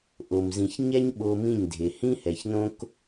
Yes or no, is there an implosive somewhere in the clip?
yes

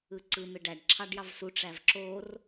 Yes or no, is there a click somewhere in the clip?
yes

